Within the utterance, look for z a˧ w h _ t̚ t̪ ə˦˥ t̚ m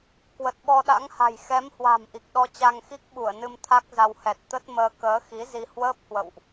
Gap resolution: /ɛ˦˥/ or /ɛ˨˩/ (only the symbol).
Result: ɛ˨˩